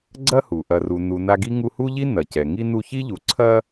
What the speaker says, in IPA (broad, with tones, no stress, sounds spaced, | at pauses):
ɡ͡ǀ ɐ˥ h u˩ ʔ ɐ˨ r u˨ n u˨ n a˦ ɡ i˥ ŋ u˦ h u˥ ʎ i˥ n ɐ˩ c ɛ˩ ŋ i˦ n u˦ ç i˥ ʎ u˨ ǀʰ ɐ˦